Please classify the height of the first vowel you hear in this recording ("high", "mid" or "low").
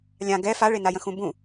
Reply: low